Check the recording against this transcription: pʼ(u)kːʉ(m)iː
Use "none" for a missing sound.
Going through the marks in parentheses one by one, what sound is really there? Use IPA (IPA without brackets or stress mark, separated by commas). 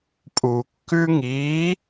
u, ŋ